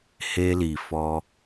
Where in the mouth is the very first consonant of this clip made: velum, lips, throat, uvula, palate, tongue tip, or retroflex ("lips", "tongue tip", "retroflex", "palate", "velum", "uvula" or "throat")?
throat